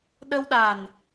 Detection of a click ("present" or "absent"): absent